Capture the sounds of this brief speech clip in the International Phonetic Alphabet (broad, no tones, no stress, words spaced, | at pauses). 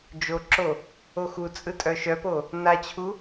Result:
d͡ʒoǁo | oxut͡sʼɯ tʼœʃœpo | nat͡ɕʰu